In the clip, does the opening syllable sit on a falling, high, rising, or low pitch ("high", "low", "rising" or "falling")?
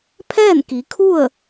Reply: falling